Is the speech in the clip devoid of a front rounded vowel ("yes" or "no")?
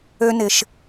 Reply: no